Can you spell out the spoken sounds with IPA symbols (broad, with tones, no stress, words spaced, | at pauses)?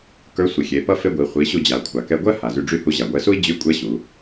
kə˞˧˥sʷi˩xʲe˩˧pʌ˥ fe˥ɡʷi˩˧ χʷi˩˧ɕu˧ d͡ʑa˩kʷʰa˩ kɛ˧ɡʷɜ˥ ha˩zy˧ɖ͡ʐy˥ hu˧ʑa˩ ɡʷɛ˧su˥i̯d͡ʑy˧˥kʷʼɛ˧˥ ɕu˩˧